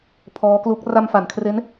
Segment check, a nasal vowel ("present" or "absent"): absent